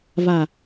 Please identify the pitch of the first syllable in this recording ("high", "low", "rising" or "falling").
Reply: low